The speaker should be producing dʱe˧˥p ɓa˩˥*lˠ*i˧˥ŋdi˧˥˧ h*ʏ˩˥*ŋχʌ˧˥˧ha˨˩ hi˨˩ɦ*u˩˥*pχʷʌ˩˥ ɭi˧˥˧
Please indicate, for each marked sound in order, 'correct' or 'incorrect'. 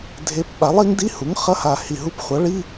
correct, incorrect, incorrect

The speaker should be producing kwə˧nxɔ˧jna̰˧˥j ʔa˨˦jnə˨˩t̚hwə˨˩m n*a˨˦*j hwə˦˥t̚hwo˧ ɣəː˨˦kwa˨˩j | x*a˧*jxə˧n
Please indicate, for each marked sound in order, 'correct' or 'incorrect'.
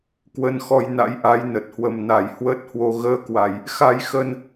incorrect, correct

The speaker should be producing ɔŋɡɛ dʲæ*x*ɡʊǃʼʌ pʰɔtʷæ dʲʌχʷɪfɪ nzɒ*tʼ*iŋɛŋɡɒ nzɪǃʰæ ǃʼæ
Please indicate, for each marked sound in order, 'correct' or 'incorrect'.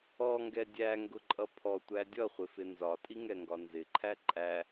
incorrect, correct

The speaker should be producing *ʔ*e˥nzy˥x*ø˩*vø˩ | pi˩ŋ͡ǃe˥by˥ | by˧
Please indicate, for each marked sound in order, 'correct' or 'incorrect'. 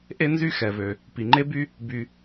correct, incorrect

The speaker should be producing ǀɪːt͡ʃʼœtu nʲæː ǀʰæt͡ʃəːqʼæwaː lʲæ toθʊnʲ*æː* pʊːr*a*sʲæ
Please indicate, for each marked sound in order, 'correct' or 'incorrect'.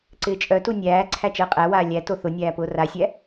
correct, correct

